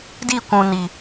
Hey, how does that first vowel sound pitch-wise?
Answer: falling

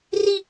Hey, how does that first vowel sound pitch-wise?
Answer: high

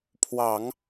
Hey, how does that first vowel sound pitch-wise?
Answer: low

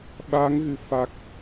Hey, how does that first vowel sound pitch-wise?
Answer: rising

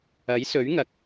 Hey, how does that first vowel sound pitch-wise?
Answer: rising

